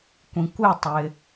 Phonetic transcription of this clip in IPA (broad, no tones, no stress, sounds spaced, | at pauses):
kʷ ĩ kʷ ɪ tˤ ɪ